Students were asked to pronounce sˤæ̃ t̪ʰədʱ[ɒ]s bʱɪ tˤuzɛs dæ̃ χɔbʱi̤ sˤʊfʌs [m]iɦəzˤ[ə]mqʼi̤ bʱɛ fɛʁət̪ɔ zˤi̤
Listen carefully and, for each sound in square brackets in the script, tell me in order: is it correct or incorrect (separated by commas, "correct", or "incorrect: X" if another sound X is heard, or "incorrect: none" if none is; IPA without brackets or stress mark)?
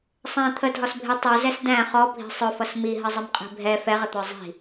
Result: correct, correct, correct